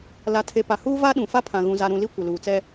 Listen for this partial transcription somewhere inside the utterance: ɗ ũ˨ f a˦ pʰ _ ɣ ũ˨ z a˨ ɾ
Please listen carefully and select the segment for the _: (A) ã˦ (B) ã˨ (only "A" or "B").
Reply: B